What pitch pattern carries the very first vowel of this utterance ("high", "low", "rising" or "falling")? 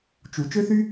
low